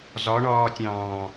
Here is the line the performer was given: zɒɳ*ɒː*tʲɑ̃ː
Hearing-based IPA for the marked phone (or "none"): ɒː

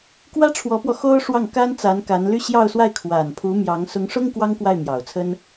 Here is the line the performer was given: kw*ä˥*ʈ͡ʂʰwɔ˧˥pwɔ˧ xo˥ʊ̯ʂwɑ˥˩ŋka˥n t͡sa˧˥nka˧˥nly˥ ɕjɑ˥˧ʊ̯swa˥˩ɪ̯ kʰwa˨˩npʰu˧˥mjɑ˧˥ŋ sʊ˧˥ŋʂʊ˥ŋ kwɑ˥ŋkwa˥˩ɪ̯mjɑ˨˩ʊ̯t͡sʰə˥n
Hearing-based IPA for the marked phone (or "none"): ä˥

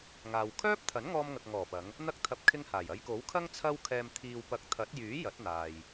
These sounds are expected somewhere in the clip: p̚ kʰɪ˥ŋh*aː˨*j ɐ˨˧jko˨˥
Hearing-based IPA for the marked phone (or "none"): aː˨˩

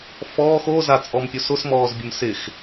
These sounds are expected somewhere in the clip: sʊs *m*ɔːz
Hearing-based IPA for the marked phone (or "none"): m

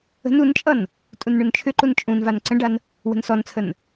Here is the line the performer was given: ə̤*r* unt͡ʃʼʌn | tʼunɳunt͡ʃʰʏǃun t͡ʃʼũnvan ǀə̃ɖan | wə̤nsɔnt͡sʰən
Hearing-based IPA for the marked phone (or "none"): n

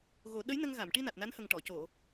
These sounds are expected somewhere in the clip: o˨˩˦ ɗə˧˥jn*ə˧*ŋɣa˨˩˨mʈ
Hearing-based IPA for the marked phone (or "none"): ə˧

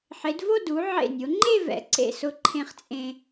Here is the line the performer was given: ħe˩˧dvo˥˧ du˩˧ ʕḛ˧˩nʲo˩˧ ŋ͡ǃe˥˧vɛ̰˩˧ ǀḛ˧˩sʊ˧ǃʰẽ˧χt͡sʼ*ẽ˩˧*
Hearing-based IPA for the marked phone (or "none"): ẽ˧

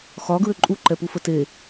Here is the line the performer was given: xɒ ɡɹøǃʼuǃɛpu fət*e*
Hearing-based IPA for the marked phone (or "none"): e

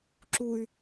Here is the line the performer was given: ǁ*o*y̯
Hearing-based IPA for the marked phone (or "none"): u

